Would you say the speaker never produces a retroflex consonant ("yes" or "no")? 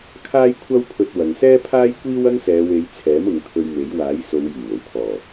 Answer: yes